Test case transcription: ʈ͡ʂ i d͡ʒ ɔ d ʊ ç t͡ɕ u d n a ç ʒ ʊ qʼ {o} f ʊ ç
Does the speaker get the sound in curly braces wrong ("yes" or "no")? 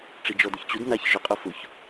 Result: no